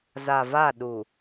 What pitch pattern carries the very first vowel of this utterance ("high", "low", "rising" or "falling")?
low